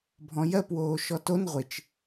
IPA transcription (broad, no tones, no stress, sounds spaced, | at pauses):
bʱ ɔ̃ j ɜ p w oː ʃ ɔ t o n ʁʷ ɪ t͡ʃ